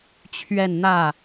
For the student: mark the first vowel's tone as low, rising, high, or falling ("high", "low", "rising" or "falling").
falling